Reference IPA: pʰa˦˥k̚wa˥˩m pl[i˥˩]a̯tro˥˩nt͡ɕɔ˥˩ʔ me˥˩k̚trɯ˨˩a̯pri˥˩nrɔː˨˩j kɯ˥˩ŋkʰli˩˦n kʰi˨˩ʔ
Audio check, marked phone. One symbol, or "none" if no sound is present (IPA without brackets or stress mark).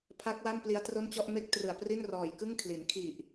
i˦˥